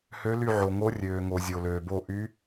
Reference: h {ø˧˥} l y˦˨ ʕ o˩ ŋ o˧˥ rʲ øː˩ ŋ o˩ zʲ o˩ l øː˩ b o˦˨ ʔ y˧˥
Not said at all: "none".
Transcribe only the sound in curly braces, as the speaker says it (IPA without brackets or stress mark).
ø˧˥